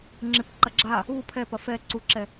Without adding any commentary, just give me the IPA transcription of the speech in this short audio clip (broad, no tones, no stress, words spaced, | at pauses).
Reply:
ŋ͡ǁɪpǃɐ ɡ͡ǁa | u pʰɛpɐ fɛ ǀuǁɛ